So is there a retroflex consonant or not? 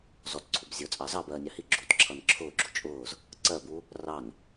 no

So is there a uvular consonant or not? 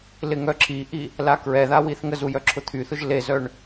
no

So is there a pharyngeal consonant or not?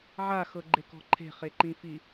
yes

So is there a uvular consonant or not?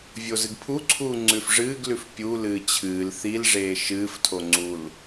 no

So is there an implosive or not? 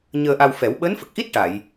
yes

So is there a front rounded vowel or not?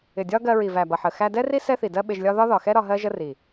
no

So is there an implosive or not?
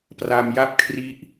no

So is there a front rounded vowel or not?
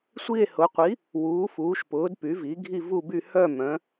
yes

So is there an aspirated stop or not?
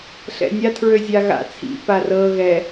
yes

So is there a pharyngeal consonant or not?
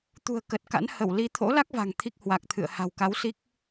no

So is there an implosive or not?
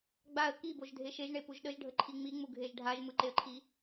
yes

